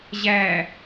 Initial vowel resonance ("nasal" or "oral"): oral